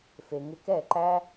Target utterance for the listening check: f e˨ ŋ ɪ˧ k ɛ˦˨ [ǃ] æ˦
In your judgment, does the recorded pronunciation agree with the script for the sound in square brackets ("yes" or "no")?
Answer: yes